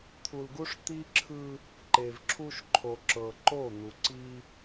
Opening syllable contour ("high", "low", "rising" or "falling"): low